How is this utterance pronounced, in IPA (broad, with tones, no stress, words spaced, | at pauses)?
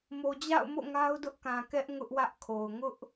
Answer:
mo˨d͡ʑa̰˦˨ʊ̯mo̰˦˨ ŋa˦ʊ̯dʊ˦ʔkã˨kɛ˦ʔ ŋʊ˦ʔwä˦ʔkʰo˨ʊ̯ ŋʊ˦ʔ